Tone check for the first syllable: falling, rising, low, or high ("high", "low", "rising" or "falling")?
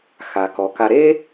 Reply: low